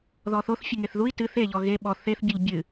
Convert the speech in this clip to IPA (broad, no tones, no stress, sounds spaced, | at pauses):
ð ɔ θ o θ fʲ ɨ ŋ e θ ð u i̯ t ɨ θ e ʎ ɔ ɣ e ɓ ɔ θ e θ bʲ o ʎ bʲ ɨ